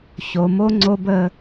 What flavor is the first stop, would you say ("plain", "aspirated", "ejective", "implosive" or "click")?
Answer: click